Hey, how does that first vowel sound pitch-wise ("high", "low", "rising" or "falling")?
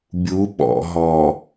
rising